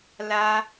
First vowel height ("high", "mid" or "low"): low